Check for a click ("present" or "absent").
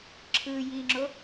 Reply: present